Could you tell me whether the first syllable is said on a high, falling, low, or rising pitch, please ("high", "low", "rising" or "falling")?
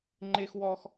high